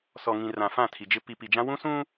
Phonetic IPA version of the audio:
sɔ˨ŋĩ˨ rã˨fã˦˨tʰi˨d͡ʒɪ˦ pi˨pi˨d͡ʒã˦ wũ˦sũ˦

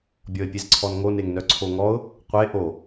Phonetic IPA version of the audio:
bʲɔɪ̯pʲezǀʰɔnŋo neŋnœǀʰoŋɔʊ̯ | qʷe ʔo

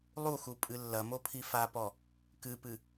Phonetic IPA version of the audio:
lˠuxu pʼɨlːɐmo pʰifapɔ | kɨpɨ

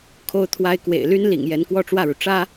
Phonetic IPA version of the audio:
kʰo˥ʊ̯t̪ʰwa˥ɪ̯ kwḛ˨˩ɪ̯ly˥n lḭ˨˩ŋ jɛ˧˥nkwɔ˥˧ʈ͡ʂwä˥˩ɻu˩ ʈ͡ʂä˥

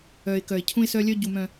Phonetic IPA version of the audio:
œ˨ɪ̯ kœ˨ɪ̯cʰũ˦ɪ̯sœ˦lʲœ˦ ɟu˨mœ̃˨

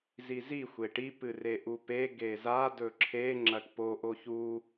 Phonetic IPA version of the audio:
zizi xʷeʈi pɨreʔupe ɡeza dɵǁʰe ŋ͡ǁɐʈpo ʔoçu

